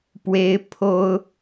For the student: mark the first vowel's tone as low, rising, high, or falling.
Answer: high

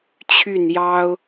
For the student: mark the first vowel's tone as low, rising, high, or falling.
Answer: falling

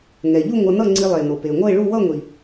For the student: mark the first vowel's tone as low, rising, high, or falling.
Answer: low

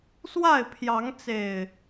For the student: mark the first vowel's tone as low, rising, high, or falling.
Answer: falling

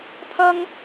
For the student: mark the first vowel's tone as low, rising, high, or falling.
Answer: high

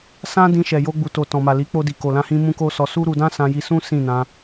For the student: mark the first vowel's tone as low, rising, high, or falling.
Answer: high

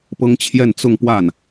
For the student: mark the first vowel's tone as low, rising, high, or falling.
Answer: high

